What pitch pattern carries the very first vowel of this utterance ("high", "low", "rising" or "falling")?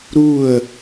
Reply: falling